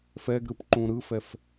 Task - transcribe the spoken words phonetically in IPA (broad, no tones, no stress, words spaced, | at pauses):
fɛɡɾɯp ǃũɾɯfɛf